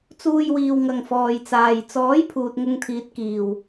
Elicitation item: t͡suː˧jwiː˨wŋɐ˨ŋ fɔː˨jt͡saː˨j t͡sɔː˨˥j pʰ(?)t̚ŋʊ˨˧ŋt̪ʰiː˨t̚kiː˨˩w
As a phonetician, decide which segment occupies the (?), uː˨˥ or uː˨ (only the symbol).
uː˨